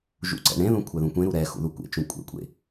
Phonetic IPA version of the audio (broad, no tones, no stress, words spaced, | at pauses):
ʒṵǀɛ̰ɳẽðũ kʷʰɛðũkʷẽɾu ɾɛ xṵðukʷḛt͡ʃũ kʷʼḛkʷʼḛ